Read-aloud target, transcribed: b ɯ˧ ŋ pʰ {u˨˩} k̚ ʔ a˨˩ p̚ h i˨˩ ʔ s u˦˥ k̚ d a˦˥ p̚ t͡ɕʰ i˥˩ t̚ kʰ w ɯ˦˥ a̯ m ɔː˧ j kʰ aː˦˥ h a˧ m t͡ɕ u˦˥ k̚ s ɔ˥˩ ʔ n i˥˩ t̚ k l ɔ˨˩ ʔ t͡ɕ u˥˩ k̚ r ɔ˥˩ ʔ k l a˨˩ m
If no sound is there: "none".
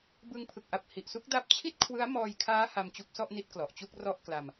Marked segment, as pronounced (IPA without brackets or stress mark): ɯ˨˩